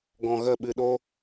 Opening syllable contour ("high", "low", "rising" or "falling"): low